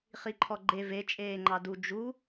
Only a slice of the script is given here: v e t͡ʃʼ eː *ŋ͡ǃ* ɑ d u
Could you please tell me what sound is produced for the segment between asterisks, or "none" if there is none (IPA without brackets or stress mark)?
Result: ŋ͡ǃ